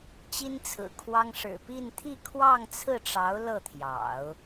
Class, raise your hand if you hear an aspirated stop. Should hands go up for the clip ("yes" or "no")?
yes